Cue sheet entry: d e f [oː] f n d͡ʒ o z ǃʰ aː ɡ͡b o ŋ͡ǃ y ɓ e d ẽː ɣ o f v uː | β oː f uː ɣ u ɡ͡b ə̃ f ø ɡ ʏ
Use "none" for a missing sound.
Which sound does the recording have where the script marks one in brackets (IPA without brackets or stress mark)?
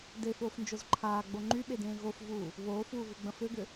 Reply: oː